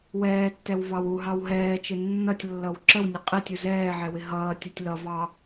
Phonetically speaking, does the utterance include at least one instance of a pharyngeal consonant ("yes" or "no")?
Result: yes